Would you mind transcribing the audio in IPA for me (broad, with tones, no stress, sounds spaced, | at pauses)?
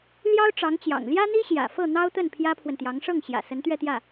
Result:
l j ɑ˥ ʊ̯ ʈ͡ʂ ɑ˧˥ ŋ t͡ɕ j ɑ̰˨˩ ŋ l j ä˥ n̪ i˥ ɕ j ä̰˨˩ f ɤ˥˩ n̪ ɑ˥ ʊ̯ t̪ ə˥˩ n pʰ j ä˥ pʰ w ə˨ n t̪ j ɑ˧˥ ŋ ʂ ɤ˥˩ ŋ ɕ j ä̰˨˩ s ə˧˥ n t̪ ɥ ɛ˥˧ t̪ j ä˥˩